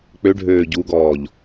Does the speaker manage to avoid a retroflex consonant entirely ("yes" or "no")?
no